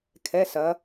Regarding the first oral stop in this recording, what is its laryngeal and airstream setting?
aspirated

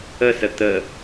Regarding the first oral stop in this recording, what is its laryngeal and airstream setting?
plain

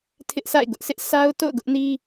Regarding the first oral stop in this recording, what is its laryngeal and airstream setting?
aspirated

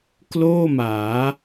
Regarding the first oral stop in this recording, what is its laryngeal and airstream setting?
plain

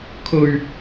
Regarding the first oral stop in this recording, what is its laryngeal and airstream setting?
aspirated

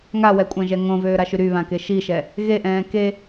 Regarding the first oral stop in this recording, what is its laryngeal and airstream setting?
ejective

